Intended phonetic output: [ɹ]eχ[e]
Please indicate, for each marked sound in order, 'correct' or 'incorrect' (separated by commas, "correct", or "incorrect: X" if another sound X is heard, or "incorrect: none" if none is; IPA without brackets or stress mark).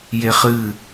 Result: incorrect: j, incorrect: ɨ